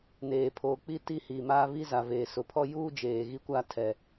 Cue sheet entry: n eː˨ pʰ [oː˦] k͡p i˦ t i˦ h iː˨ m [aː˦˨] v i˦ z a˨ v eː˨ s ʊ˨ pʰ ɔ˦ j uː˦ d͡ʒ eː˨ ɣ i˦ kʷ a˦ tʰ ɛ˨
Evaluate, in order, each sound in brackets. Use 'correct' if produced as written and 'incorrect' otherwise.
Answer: incorrect: oː˨, incorrect: aː˦

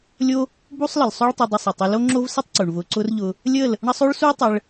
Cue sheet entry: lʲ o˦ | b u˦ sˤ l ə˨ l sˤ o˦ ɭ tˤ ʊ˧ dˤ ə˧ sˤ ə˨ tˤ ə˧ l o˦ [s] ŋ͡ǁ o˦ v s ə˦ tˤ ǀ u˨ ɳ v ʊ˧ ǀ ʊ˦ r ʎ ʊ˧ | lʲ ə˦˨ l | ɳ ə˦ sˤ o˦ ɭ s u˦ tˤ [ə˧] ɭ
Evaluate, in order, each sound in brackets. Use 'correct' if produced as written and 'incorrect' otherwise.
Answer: incorrect: none, correct

